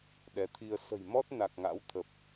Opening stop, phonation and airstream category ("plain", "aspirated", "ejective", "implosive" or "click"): implosive